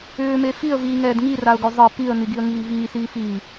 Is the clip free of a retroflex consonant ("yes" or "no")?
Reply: yes